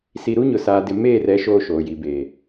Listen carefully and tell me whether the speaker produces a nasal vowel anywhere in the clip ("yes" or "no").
no